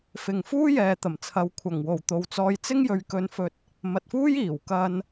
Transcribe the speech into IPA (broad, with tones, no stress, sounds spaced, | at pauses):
f ɪ˨ ŋ f uː˥ j ɛː˨ t̪ ɐ˨˩ m t͡sʰ ɐ˨ w kʷʰ ɐ˨˩ ŋ w o˨˩ w t̪ o˨ w t͡s ɔː˧ j t͡s ɪ˥ ŋ j ɵ˨˧ ɥ k ɵ˧ n f ɵ˧ t̚ | m ɐ˨ t̚ f uː˥ j iː˨˩ w k ɐ˧ n